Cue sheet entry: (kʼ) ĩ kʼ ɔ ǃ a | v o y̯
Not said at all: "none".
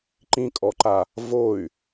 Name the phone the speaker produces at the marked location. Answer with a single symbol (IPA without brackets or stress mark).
ǃ